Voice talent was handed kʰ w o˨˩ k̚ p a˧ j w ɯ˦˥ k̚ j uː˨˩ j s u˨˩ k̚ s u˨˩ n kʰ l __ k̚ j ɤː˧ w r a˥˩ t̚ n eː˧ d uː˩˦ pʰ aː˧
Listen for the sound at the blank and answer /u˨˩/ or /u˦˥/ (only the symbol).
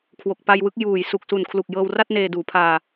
u˨˩